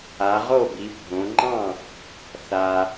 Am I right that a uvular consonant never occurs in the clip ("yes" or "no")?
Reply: no